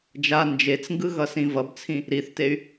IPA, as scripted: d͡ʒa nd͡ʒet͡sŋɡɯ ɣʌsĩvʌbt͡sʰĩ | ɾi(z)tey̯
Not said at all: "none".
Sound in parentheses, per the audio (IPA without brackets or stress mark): θ